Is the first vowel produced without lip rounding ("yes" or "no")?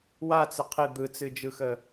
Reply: yes